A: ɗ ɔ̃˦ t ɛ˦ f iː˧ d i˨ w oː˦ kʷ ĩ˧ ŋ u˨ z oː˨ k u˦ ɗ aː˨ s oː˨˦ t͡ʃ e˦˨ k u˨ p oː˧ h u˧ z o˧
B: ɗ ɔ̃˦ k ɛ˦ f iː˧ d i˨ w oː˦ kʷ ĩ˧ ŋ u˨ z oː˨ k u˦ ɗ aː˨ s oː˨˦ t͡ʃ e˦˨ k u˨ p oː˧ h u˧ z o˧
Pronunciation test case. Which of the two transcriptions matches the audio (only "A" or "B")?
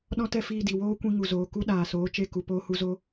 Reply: A